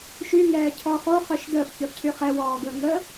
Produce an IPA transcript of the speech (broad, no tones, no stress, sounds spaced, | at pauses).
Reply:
ʃ y ŋ ɛː cʰ ɔ χ o χ œ ʃ d əː f ç œ f cʰ y χ ɛ w ɔː ɡ əː ŋ ə